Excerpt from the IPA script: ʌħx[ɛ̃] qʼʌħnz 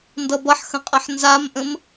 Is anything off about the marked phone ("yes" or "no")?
yes